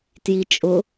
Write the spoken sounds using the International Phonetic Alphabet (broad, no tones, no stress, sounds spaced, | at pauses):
t j i t͡ʃʼ ʊ